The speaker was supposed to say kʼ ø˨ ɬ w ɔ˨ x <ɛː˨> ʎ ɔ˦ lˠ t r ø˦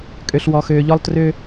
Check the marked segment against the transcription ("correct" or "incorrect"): incorrect